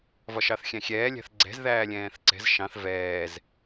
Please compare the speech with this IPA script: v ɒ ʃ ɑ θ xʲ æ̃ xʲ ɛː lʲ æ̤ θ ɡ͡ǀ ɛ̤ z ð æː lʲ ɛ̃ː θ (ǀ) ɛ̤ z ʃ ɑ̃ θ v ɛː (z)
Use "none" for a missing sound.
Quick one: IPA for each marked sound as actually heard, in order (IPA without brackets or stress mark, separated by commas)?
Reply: ǀ, z